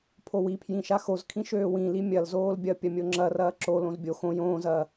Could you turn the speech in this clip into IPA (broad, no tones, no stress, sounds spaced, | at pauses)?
pʰ o w i pʰ j ĩ ʃ a x o z kʰ ĩ ʃ øː w ĩ l i mʲ ɐ l z oː l bʲ ɐ pʲ ɐ mʲ o ŋ͡ǁ ɐ r ɐː ǁ o l õ z bʲ o x õ j õː z ɐː